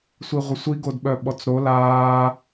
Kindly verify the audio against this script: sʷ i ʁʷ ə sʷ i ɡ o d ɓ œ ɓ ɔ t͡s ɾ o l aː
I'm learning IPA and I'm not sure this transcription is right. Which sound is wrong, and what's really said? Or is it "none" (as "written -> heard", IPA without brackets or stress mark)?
none